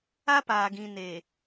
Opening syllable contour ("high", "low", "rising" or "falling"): high